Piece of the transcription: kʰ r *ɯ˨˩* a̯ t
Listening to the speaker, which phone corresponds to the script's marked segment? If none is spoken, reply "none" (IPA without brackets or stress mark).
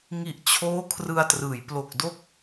ɯ˧